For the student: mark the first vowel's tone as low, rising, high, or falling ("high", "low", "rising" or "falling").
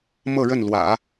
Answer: falling